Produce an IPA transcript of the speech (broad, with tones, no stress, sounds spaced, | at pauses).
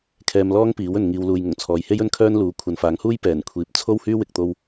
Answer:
kʰ ɛː˧ m l ɔː˥ ŋ p iː˨˥ w ɵ˨ n ŋ iː˨ w l uː˨ j ŋ ʊ˨˩ ŋ t͡sʰ ɔː˨ j h e˥ j ɵ˥ n kʰ œː˥ n l uː˨˥ kʷʰ ɐ˨ n f aː˨˥ ŋ h uː˥ j p ɛː˨˩ n kʷʰ iː˨ p̚ t͡sʰ o˥ w h yː˥ w ɪ˨ k̚ t̪ o˧ w